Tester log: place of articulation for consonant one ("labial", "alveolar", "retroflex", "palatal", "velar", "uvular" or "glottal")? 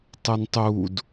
alveolar